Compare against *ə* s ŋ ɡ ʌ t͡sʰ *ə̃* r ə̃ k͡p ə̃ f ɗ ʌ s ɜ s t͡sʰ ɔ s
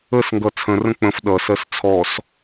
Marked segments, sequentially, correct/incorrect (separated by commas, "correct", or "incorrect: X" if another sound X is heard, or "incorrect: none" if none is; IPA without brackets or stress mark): correct, correct